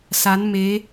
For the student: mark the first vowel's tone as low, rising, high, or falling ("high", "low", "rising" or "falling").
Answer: rising